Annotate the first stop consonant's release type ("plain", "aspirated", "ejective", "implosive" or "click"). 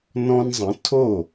aspirated